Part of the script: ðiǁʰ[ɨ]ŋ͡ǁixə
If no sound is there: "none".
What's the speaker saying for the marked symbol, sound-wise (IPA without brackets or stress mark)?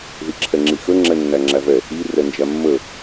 ɛ